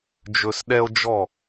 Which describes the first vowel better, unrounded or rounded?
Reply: rounded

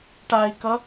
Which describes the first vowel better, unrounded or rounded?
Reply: unrounded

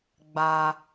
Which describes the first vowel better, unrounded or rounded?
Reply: unrounded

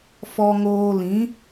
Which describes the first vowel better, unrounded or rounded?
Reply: rounded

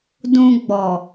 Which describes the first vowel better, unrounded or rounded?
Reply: rounded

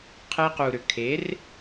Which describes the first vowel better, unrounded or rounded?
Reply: unrounded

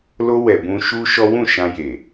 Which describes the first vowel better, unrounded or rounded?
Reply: rounded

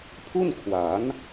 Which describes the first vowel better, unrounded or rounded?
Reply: rounded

